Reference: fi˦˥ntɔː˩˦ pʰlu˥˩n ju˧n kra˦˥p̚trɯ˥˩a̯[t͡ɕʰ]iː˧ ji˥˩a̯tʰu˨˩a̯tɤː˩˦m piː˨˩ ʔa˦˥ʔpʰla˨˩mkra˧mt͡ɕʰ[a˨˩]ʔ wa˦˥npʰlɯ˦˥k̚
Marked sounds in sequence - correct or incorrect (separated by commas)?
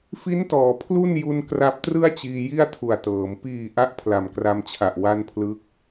incorrect, correct